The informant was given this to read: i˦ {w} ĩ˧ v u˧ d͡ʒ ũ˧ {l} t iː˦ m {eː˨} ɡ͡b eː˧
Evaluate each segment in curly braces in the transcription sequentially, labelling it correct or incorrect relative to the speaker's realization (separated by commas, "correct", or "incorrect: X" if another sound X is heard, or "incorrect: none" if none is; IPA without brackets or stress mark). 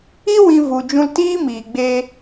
correct, correct, incorrect: iː˨